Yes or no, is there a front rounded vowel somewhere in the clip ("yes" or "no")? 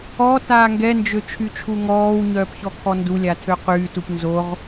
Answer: yes